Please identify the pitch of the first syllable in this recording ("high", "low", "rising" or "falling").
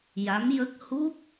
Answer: rising